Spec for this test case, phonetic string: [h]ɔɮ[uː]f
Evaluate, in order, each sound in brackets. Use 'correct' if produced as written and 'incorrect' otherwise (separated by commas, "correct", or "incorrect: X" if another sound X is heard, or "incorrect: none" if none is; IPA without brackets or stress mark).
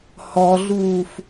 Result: correct, correct